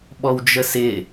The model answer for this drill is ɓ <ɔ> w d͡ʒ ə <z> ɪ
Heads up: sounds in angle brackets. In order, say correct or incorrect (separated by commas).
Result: correct, incorrect